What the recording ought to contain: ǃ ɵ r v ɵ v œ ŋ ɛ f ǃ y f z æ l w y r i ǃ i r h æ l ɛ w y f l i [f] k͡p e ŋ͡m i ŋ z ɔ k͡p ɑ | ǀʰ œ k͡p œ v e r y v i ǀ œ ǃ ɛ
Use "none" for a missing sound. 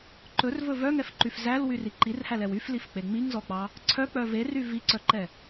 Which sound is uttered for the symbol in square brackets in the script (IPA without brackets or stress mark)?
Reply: f